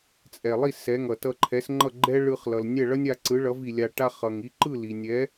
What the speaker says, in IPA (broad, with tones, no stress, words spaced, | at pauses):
t͡sʼɛ˩lˠi˥˩ sɛ˩˥ ŋʌ˩ tʌ˧ǃʰɛ˩˥sŋ͡ǃʌ˥˩ ɡ͡ǃɛ˥ɭɯ˧χlʌ˩l nʲɛ˥˩ɭʌ˥nʲa˧ ǀɯ˩˥ɭʌ˩˥vi˩ lʲa˧ʈa˥ χʌ˩ŋ i˧ǃɯ˥˩ li˩ nʲɛ˩˥